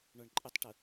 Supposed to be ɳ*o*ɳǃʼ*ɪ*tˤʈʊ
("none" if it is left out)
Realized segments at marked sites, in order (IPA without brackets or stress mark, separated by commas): ɔ, ɪ